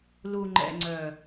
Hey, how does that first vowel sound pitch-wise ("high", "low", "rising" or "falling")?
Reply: low